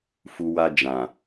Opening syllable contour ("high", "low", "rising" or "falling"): low